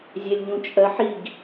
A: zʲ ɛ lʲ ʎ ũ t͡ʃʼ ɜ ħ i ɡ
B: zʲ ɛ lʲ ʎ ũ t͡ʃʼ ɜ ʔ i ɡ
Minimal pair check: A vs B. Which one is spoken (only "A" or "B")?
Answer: A